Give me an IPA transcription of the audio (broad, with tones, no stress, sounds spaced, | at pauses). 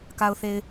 k a˨ ʊ̯ θ e˨ ɪ̯